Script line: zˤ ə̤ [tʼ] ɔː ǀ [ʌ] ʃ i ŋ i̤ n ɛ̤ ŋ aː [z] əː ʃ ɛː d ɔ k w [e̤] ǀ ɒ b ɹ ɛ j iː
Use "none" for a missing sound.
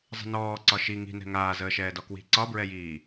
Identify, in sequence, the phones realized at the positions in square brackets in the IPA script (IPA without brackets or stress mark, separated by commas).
n, ɒ, z, i̤